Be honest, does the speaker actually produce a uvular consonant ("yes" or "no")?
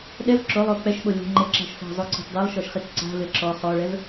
yes